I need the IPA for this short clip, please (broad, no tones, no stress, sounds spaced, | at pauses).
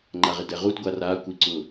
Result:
ŋ͡ǃ a ʁ ɪ d ɛ ʁ u d ɡʷ a r a kʷ i ǀ ʊ